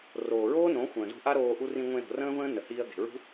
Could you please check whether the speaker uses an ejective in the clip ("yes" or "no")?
no